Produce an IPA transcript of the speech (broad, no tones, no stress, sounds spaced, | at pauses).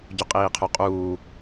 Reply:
ɟ ʏ qʼ iː qʰ ɵ qʼ uː